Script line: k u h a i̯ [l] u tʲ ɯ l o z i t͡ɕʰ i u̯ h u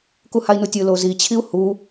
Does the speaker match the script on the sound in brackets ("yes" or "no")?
no